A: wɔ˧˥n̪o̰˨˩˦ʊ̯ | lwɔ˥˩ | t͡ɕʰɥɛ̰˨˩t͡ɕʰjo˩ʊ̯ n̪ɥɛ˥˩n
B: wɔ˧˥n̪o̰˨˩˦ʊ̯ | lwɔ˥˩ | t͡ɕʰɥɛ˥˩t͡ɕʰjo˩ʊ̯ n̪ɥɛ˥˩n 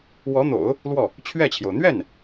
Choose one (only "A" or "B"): B